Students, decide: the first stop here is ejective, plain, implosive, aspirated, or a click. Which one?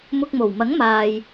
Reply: plain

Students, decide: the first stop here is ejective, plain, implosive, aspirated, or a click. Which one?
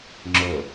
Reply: click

